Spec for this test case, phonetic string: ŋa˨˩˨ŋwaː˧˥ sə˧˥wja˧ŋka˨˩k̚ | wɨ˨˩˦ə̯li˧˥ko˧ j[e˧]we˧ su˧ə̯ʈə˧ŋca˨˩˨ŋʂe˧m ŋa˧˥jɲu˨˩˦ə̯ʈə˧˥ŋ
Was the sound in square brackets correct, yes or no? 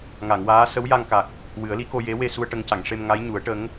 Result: no